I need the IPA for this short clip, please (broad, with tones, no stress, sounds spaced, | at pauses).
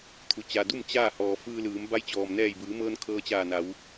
t̪ʰ u˩ t͡ɕ a˩ d u˥˨ m t͡ɕ aː˥˨ h ɔː˩ f ɯː˧ l ɯː˩˧ m b a˧˥ j t͡ɕ ɔː˩ m n ɛː˧˩ j b ɯː˩˧ m ɤː˧ n kʰ ɤː˧ t͡ɕ aː˧˩ n a˩˧ w